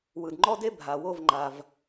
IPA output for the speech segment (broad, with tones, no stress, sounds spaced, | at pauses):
w ɯ˨ d ŋ͡ǃ ɔ˦ d e˦ bʱ a˨ w o˦˨ v ŋ͡ǃ a˨ v